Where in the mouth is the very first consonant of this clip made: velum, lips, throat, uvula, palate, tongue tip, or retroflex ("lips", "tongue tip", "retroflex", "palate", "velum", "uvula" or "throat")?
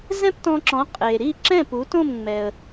tongue tip